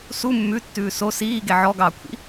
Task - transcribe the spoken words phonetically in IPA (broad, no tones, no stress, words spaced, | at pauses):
su mːʉtːʉː so siːɡe ʕɔɡɑːkʷʰḭ